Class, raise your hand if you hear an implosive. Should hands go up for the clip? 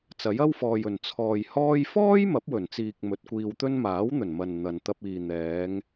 no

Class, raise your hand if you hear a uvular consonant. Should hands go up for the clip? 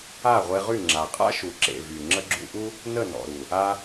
yes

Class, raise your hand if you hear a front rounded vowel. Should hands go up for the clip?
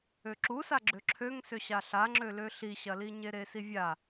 yes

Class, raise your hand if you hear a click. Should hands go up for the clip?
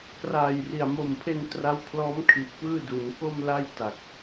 no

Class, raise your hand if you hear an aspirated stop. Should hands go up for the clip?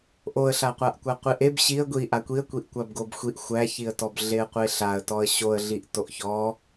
no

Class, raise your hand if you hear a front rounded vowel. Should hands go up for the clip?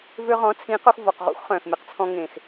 yes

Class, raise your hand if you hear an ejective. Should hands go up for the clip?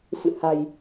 no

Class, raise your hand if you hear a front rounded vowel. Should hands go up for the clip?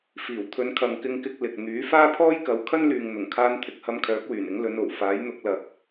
yes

